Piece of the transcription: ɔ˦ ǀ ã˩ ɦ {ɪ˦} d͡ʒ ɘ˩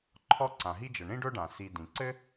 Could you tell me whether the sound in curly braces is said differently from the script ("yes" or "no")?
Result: yes